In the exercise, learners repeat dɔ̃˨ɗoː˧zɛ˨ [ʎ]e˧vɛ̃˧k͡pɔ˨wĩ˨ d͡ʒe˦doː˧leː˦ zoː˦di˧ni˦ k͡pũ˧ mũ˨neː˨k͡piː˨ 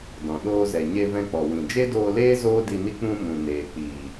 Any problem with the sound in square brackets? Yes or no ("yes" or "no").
yes